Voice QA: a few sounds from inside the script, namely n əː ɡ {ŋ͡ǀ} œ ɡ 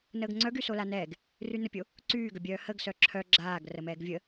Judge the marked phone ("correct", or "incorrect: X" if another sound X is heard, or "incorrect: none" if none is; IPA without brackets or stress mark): correct